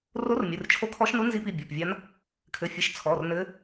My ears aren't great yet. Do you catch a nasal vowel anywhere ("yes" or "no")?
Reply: no